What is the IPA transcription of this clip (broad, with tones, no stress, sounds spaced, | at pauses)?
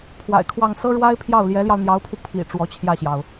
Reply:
pʰ w a̰˨˩ ɪ̯ kʰ w ɑ˥˩ ŋ s ɤ˥ ɻ w a˥ ɪ̯ pʰ j ɑ˥˩ ʊ̯ l j ɛ˧˥ l j ɑ˧ ʊ̯ n̪ j ɑ˧˥ ʊ̯ pʰ u˧ pʰ ḭ˨˩ ʈ͡ʂ w ɔ˧˥ t͡ɕʰ j ä˥˩ ɕ j ɑ˩ ʊ̯